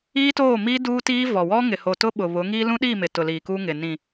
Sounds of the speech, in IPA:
i˦ t oː˦˨ m i˦ d uː˦ t iː˦ v ɔ˨ w ɔ˦ ŋ ɪ˨ h o˨ t ʊ˦ ɓ ʊ˨ β ʊ˨˦ ŋ iː˦ l ũ˦ ɗ iː˦˨ m ɪ˨ t ʊ˨ l iː˨ k uː˦ ŋ ɪ˨ n ĩ˨

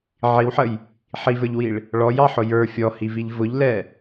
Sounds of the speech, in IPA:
ʕ i w ħ ə j | ħ i v ə˞ ʎ w i ɭ | ɭ ɔ j ɑ ħ ʊ j ə˞ fʲ ɔ h i v i ʎ v ʊ ʎ l ɛ

